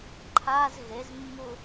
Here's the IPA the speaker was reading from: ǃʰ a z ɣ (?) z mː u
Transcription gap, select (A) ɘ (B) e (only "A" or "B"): B